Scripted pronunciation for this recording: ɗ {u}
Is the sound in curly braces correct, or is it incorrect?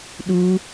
correct